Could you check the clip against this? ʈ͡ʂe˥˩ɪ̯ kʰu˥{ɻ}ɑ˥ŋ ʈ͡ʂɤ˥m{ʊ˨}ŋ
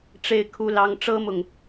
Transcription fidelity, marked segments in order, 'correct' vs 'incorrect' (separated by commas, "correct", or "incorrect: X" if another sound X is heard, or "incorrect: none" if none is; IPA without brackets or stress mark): incorrect: l, correct